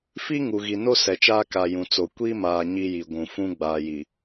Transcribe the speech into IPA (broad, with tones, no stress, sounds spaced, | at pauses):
f i˦ ŋ u˨ ɣ i˨ n o˦ s ɛ˨ t͡ʃ aː˦ k a˨ j ũ˨ t͡s o˨ kʷ i˦ m aː˨ ɲ i˦ j i˨ ɡʷ ũ˨ f ũ˦ ɡ͡b aː˨ j i˨